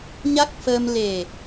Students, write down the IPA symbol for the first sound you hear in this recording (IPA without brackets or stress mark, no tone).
ɲ